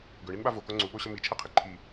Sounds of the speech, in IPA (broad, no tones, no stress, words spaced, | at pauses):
ɡɵɳinɓa voko ŋ͡ǀuɓoɕə mit͡ʃʰɛqʰi ǃʰi